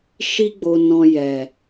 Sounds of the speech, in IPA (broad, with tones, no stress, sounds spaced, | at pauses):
ʃ i˦ ɡ͡b o˧ n ɔ̃˧ j ɛ˨